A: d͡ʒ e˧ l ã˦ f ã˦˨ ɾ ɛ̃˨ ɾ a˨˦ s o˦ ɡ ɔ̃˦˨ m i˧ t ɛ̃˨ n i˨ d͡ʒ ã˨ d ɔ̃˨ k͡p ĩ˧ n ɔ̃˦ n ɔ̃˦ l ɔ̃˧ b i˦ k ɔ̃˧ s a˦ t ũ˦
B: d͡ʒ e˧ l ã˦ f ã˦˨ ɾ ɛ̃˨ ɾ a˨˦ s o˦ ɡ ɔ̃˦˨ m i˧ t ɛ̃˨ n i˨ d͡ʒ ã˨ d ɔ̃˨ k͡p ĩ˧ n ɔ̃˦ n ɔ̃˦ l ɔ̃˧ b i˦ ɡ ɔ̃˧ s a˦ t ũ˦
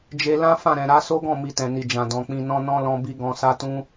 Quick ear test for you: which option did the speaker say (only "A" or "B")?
B